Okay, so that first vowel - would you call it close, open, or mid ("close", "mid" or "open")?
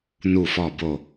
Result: close